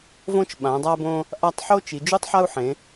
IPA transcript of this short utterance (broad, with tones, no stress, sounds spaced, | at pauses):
v õ˦ t͡ʃ ɓ ã˩˧ dˤ a˦ b õ˦ | ʔ a˦ tˤ ħ o˦ t͡ʃ i˩˧ d͡ʒ u˦ tˤ ħ a˦ u̯ ħ ẽ˩˧